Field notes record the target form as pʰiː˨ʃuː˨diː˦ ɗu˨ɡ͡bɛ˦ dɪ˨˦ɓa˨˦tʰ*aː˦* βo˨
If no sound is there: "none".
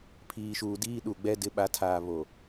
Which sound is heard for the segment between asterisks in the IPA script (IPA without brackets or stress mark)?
aː˨